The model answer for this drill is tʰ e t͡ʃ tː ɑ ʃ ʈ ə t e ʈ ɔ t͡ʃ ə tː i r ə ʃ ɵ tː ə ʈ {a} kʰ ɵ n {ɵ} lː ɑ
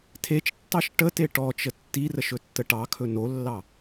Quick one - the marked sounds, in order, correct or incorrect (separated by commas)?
incorrect, incorrect